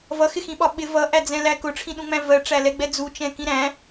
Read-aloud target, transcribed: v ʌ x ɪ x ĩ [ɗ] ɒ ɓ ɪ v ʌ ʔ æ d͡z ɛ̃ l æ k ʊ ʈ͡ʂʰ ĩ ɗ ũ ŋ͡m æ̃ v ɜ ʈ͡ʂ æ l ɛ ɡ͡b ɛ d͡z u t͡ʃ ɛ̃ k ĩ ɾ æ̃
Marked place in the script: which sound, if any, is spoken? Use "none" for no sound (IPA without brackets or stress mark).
ɓ